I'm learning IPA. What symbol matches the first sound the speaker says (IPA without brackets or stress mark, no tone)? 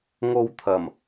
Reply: ŋ